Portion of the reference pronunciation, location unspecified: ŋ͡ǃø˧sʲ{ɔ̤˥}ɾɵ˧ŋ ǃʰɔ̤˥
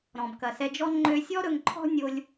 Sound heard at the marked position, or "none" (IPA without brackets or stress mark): ɔ˥